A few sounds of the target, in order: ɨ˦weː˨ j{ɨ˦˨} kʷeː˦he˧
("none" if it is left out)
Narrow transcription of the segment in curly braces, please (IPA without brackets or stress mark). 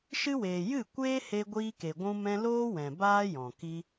ɨ˦˨